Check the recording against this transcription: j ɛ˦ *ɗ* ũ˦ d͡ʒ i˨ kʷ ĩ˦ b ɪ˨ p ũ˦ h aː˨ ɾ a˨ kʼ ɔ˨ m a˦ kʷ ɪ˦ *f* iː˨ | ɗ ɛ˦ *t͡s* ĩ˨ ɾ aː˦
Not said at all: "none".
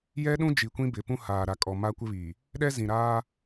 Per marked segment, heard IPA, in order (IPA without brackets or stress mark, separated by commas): ɗ, β, z